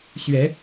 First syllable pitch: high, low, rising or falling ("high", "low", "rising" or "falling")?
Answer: rising